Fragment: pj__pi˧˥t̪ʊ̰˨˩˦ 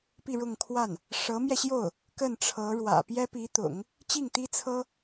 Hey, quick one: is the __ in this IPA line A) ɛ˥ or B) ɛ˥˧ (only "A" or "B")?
A